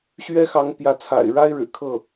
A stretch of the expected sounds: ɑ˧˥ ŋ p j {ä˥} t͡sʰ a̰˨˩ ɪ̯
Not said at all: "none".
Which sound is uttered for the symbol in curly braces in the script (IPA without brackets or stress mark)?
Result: ä˧˥